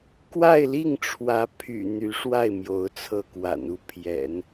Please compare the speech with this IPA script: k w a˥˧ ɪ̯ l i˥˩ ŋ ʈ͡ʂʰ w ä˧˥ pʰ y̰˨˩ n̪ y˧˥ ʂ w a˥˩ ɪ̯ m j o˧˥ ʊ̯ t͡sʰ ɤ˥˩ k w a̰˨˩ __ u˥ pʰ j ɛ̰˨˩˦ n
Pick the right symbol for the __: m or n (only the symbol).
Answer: n